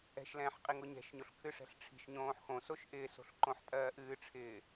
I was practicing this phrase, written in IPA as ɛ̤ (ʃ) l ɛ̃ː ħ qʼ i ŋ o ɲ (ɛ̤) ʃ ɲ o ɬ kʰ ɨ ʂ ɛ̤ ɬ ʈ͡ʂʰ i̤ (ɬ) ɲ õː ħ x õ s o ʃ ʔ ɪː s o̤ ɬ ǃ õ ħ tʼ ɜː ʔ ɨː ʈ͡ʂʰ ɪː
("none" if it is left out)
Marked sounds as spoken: ʃ, ɛ̤, ʃ

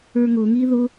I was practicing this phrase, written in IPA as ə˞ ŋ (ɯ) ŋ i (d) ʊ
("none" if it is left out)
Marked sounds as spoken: ʊ, ð

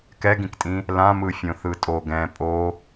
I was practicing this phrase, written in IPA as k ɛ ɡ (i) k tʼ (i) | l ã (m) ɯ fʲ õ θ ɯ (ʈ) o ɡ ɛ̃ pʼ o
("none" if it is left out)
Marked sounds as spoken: ĩ, ĩ, m, tʼ

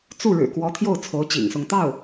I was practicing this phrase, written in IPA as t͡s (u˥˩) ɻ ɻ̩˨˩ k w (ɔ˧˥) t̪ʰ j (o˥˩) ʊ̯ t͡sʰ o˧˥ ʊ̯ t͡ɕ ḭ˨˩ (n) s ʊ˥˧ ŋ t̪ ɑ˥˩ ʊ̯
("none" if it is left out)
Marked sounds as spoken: u˥˩, ɔ˧˥, o˥˩, ŋ

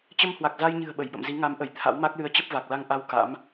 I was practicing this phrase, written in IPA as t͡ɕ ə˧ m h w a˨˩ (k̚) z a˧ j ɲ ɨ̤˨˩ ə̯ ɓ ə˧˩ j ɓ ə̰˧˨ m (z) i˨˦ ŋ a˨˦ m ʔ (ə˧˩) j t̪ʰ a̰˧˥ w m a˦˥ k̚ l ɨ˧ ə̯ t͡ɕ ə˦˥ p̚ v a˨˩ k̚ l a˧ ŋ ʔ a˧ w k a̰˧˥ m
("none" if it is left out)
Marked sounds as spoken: k̚, z, ə˧˩

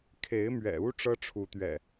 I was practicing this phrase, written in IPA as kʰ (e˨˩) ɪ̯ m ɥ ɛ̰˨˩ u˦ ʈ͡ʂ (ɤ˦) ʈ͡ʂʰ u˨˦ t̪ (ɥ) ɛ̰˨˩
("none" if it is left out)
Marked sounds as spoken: e˨˦, ɤ˦, ɥ

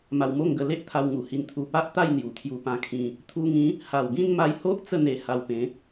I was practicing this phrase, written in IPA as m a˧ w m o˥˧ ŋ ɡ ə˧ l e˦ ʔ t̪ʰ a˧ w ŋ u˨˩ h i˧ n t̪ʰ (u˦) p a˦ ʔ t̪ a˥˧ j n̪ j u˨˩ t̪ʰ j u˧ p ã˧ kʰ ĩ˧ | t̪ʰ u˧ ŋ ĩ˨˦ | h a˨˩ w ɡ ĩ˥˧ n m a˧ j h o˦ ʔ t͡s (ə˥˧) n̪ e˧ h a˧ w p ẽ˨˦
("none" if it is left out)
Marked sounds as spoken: u˧, ə˥˧

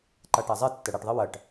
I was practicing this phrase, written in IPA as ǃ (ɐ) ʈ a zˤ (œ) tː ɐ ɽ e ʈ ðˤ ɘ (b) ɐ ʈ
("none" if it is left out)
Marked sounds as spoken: a, ɛ, w

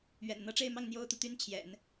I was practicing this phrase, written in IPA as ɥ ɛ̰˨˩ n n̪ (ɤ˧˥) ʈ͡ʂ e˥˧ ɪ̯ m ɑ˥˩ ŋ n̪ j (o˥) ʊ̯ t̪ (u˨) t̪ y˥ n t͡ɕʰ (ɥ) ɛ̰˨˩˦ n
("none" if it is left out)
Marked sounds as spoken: ɤ˧˥, o˥, u˨, j

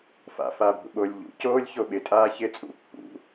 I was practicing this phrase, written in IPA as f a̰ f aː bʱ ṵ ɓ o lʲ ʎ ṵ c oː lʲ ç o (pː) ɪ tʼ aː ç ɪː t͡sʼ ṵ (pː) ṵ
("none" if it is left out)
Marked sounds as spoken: ɓ, pː

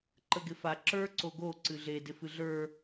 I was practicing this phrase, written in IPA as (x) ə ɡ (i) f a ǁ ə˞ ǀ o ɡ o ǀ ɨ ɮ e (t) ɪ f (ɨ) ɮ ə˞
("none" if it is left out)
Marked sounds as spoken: ǃ, ɪ, d, ɨ

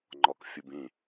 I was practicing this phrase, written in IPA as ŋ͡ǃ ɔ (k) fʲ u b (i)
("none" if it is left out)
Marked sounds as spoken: k, ĩ

